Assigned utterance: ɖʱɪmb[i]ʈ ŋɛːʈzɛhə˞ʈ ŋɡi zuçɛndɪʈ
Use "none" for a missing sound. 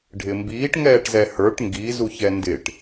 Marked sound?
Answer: iː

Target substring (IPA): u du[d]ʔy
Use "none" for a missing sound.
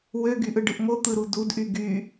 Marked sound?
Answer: d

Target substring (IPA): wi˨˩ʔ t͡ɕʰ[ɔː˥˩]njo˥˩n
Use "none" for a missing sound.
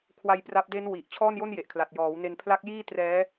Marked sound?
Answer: ɔː˥˩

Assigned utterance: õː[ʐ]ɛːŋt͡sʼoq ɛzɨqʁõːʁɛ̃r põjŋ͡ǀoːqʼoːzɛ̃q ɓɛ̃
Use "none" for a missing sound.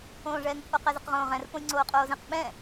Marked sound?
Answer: ʐ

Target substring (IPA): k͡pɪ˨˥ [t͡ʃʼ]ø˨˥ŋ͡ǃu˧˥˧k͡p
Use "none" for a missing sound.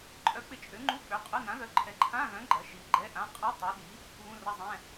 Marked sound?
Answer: t͡ʃʼ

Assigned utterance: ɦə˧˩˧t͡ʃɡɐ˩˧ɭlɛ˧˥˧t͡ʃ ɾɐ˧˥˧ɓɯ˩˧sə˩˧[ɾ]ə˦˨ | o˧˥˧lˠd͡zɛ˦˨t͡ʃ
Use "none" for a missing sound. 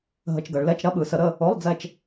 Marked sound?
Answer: ɾ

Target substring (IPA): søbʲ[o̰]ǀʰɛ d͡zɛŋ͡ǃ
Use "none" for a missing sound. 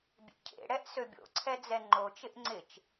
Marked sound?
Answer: o̰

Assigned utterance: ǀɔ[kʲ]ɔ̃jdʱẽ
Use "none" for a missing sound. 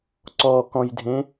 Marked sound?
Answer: k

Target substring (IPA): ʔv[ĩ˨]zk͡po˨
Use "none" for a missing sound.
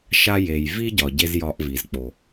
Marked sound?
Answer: i˨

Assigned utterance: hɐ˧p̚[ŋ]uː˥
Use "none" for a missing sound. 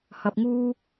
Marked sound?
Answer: ŋ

